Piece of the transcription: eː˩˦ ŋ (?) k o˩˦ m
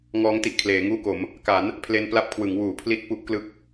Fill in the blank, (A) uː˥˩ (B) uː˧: A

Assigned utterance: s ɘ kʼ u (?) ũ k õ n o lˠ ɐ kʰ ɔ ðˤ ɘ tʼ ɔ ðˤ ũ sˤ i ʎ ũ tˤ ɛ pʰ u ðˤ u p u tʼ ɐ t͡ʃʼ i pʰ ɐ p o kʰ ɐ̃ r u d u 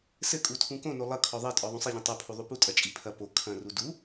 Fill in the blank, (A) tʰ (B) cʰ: A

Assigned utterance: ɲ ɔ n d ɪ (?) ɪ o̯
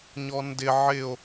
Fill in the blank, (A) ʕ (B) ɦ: A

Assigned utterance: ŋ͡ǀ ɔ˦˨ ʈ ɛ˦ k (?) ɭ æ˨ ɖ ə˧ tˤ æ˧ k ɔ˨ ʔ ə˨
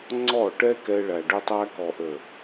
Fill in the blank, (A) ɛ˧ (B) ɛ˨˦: A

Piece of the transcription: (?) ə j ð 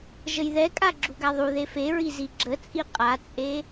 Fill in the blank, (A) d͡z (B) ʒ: B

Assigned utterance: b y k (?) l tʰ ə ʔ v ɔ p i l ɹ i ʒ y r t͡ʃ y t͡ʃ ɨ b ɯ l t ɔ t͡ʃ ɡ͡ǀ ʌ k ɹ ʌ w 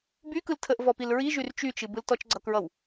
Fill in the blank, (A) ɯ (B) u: A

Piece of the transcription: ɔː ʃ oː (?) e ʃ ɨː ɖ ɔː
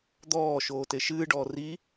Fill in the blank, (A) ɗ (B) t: B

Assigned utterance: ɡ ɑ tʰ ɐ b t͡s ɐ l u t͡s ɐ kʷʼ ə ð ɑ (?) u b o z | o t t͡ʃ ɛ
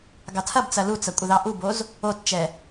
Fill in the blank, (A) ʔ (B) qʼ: A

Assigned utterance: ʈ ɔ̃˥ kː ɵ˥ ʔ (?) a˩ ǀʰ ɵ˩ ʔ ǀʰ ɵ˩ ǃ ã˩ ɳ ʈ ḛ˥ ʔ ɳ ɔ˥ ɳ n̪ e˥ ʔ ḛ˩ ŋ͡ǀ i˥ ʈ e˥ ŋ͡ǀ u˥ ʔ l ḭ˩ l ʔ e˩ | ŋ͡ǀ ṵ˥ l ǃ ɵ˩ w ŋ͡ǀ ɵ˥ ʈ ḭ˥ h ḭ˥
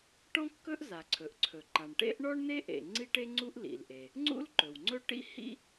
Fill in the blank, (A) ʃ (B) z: B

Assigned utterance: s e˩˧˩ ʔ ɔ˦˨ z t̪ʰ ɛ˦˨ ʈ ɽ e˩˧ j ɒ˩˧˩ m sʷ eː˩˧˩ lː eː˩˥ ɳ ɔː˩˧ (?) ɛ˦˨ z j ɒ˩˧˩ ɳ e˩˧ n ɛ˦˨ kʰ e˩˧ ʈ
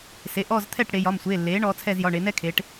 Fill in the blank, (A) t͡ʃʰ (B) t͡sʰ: B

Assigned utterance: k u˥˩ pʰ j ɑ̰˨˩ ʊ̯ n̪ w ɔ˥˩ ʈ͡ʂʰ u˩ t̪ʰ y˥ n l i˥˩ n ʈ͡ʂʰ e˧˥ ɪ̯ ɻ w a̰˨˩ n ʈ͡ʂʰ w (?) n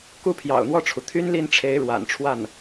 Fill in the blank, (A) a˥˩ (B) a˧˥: A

